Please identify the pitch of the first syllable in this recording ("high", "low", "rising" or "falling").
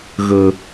low